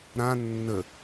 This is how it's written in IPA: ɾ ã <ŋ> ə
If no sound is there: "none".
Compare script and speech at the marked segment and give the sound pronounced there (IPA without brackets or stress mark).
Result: nː